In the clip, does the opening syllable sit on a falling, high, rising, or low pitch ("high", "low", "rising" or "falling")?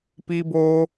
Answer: high